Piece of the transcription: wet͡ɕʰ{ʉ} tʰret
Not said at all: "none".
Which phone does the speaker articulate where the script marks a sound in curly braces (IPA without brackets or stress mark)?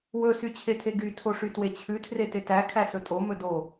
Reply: ʉ